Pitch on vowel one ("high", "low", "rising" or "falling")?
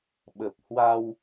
low